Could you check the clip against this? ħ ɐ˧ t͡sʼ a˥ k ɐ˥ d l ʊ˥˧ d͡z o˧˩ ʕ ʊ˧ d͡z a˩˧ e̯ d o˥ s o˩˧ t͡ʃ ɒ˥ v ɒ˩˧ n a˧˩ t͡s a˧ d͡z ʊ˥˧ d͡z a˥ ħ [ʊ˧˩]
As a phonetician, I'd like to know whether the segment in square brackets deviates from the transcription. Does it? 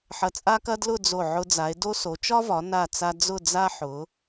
yes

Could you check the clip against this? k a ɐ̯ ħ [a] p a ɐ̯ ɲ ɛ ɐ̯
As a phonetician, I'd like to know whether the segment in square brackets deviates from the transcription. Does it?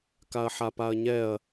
no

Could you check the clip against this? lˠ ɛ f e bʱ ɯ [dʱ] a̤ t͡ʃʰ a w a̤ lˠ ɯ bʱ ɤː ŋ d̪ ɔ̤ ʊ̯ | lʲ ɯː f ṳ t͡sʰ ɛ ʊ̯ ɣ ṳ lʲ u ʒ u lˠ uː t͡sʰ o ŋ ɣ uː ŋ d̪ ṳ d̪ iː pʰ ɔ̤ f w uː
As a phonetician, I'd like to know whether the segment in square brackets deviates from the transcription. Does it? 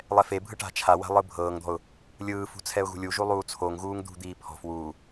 yes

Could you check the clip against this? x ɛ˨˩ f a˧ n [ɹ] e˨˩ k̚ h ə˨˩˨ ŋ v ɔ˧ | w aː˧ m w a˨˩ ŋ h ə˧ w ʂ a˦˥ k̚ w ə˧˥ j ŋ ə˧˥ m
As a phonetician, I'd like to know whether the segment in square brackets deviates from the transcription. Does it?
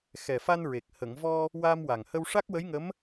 no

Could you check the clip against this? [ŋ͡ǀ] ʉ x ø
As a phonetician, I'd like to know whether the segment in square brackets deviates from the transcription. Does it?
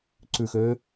yes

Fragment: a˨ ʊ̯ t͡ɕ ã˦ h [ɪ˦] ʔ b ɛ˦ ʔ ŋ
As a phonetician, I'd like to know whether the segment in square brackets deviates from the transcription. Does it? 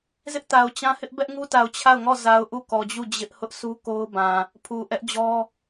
no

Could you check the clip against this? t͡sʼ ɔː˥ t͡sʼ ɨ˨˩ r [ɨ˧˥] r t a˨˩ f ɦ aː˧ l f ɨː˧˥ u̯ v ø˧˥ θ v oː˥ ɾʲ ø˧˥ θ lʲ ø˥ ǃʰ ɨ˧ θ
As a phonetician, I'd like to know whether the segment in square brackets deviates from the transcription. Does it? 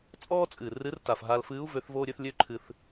no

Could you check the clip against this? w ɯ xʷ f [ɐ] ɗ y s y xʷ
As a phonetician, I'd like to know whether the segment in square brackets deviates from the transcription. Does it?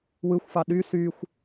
yes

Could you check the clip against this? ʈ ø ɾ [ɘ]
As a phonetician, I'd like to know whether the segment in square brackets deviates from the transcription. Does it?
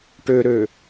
yes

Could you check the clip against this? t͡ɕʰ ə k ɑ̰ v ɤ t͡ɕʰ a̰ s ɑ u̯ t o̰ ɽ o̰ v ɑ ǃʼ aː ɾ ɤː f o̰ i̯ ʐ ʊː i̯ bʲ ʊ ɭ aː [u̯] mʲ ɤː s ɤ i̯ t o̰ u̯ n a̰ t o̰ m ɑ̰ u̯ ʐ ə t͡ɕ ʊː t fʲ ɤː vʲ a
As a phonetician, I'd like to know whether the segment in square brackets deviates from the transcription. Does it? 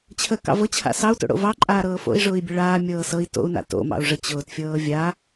yes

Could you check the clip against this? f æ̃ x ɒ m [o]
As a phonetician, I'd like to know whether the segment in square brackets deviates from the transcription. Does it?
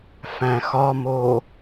no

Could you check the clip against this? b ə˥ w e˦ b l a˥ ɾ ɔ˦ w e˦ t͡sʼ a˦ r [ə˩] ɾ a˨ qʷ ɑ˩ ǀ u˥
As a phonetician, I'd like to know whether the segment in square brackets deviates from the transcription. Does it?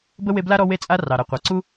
yes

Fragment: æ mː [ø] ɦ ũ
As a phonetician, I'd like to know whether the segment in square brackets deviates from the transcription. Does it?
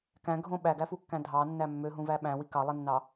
no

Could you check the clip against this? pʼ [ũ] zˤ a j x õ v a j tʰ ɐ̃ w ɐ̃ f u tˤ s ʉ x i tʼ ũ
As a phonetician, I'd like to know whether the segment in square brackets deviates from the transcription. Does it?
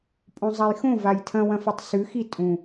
yes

